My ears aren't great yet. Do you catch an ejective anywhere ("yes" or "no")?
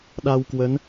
no